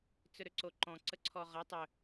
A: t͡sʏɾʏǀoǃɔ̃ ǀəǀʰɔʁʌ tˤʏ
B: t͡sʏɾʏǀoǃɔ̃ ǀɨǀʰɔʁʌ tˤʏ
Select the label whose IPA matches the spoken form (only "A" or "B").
A